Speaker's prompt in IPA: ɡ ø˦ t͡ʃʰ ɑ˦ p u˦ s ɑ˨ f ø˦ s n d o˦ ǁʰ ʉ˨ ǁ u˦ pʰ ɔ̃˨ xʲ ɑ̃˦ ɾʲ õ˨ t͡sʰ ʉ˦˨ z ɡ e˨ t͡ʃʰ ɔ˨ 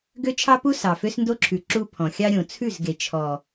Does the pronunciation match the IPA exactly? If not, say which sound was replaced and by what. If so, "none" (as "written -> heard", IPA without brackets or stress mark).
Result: ɑ̃˦ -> ɑ˦